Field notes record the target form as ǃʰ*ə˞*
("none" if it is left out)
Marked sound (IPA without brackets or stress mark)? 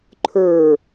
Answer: ə˞